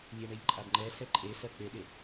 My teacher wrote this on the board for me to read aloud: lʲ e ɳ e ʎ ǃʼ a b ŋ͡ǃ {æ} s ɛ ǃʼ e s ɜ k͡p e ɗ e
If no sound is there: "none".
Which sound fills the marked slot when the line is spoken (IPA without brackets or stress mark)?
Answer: ɛ